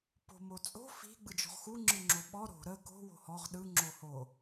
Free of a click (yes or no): no